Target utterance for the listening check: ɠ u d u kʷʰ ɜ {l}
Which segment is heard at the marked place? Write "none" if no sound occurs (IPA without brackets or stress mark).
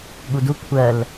l